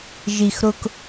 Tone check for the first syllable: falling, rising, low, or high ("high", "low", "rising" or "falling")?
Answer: high